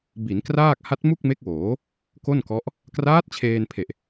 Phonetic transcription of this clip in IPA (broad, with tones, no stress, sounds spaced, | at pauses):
b i˩˦ n k r aː˥˩ k̚ h a˦˥ t̚ m u˥˩ k̚ m e˦˥ k̚ w oː˩˦ | k o˥˩ n k ɔ˦˥ ʔ | k r aː˦˥ t̚ t͡ɕʰ eː˧ n pʰ e˨˩ ʔ